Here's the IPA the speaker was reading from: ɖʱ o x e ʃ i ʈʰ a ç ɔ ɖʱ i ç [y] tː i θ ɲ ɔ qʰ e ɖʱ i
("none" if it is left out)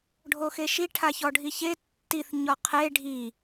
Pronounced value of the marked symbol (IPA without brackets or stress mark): e